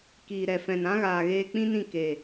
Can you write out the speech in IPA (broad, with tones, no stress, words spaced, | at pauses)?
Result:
kiː˨ɾɛ˨fɛ̃˨nã˦ ɣaː˨ɣeː˧k͡pĩ˦nĩ˦˨ ke˨